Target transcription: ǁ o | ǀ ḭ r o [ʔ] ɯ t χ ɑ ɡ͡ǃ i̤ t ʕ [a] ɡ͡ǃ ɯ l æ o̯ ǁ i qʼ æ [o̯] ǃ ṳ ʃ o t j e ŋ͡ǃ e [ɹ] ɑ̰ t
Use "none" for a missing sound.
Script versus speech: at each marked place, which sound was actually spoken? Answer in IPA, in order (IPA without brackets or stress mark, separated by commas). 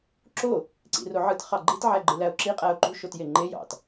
ʕ, æ, o̯, j